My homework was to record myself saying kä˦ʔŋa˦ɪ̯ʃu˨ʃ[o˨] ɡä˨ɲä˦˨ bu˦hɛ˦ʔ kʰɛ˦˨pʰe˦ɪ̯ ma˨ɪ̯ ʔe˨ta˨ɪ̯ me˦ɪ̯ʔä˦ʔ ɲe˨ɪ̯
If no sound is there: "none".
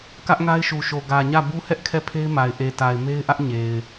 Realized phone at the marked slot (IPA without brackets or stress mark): o˨